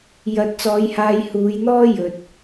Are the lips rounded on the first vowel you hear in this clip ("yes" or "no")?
no